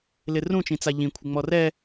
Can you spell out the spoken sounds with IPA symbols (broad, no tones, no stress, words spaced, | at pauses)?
lɪrũ t͡ʃĩt͡saʎĩ kʷʰɪŋ͡mɔrɛ